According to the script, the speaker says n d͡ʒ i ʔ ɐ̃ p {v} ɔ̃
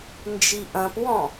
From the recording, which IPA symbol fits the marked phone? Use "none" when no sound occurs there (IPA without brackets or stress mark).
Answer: w